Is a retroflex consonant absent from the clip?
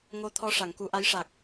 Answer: no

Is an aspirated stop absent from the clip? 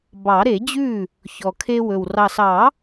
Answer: no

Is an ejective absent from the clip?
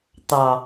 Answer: yes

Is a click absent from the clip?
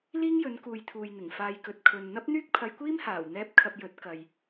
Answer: yes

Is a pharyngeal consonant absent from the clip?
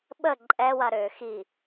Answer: yes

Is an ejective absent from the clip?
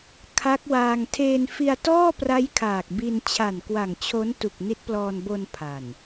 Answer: yes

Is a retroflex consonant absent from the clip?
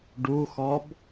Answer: no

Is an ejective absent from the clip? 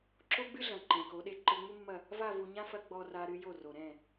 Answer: yes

